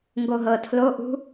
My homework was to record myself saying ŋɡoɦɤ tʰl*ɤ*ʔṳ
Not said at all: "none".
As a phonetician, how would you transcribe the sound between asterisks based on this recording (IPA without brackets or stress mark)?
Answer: o